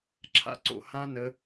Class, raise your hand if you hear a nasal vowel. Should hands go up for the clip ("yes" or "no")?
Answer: yes